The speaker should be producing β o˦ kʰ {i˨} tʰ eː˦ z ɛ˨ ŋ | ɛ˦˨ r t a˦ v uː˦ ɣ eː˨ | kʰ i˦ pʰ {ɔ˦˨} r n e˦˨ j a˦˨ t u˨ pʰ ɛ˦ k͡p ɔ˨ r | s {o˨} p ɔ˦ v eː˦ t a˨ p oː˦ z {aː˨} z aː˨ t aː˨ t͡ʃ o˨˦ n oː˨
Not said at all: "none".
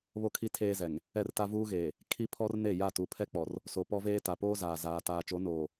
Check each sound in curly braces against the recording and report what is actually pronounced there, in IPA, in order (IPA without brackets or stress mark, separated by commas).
i˦, ɔ˦, o˨, aː˨